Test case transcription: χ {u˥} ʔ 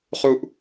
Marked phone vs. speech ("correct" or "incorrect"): correct